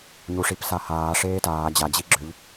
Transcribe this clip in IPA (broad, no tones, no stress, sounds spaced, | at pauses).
ɲ u ʂ i p s a h aː ʂ eː t aː d͡ʑ a d͡ʑ i ɡ͡ǁ ø ʎ